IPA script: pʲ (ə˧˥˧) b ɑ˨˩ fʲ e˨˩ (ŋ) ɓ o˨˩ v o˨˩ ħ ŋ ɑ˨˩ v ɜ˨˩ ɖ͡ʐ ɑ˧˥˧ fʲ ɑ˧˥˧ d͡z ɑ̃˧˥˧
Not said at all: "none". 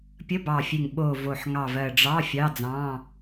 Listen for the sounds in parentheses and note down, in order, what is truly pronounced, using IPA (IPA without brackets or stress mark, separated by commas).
ə˧˥˧, ŋ